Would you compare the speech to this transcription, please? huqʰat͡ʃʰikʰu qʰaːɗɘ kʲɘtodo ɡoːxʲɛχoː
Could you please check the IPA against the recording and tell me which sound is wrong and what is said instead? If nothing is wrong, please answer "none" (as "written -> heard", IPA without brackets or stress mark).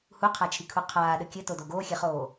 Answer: none